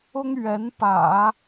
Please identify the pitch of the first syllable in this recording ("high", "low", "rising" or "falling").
high